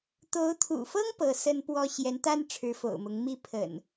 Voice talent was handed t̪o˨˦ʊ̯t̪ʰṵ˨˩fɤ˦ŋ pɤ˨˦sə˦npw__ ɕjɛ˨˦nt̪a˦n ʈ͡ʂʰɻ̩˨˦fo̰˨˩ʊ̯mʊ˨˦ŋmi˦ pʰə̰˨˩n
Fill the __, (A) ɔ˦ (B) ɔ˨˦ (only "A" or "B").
A